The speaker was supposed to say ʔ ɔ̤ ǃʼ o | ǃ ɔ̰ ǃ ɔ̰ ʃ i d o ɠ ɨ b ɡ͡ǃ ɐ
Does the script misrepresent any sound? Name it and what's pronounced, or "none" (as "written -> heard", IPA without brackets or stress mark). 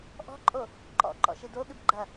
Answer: none